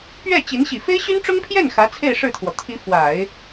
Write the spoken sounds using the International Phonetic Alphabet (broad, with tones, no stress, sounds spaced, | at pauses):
p ɥ ɛ˥˩ t͡ɕ i˧˥ n ɕ i˨˩ f e˥ ɪ̯ ɕ y˥ n ʈ͡ʂ ʊ˥ ŋ pʰ j ɛ˥˩ n x ä˧˥ t͡sʰ e˥˧ ɪ̯ ʂ ɻ̩˥˩ t̪ʰ w ɔ˩ t̪ʰ i˧˥ f w a˨˩˦ ɪ̯